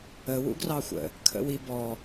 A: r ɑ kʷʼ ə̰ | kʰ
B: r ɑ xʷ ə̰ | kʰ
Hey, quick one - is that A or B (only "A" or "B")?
B